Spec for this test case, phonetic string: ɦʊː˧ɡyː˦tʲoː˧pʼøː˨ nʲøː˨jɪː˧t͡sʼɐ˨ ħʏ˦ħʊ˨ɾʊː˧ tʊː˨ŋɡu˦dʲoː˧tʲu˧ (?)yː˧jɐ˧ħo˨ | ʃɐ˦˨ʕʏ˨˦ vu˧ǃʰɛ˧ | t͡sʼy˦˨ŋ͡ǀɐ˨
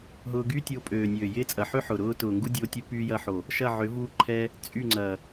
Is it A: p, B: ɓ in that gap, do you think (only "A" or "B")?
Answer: A